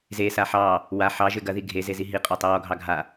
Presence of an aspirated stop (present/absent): absent